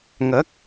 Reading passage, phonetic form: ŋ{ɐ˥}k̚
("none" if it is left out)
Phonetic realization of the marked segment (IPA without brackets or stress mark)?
ɐ˨˥